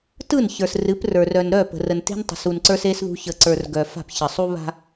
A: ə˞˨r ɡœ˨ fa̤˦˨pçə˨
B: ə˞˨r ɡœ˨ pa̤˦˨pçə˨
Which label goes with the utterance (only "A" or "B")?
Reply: A